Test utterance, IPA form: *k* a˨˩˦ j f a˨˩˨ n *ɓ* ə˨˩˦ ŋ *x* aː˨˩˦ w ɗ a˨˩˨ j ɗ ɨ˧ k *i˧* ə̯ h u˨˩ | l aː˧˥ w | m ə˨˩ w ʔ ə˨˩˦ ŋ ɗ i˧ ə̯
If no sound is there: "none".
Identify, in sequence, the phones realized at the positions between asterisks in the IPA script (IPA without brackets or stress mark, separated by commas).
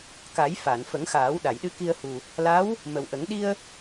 k, f, x, i˧